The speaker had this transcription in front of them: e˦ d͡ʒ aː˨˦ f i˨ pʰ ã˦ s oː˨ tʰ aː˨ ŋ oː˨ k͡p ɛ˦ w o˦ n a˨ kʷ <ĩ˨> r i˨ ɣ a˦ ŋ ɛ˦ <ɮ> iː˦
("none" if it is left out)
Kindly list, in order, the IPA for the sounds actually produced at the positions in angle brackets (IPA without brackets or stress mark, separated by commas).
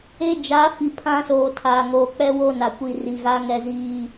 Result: i˨, z